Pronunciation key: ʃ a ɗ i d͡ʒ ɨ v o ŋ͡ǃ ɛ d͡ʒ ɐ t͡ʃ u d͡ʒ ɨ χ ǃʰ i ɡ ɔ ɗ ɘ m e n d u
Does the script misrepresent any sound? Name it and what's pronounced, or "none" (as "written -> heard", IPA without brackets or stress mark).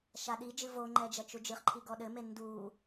none